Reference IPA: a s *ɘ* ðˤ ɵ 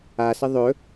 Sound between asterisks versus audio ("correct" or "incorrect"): correct